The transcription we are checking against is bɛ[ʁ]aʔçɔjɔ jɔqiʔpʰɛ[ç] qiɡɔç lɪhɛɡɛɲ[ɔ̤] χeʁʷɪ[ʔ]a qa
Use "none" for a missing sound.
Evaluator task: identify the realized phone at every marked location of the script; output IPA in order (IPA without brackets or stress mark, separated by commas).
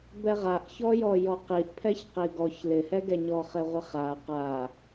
ʁ, ç, ɔ, χ